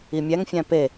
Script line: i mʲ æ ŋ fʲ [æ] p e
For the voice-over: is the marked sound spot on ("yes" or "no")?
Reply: no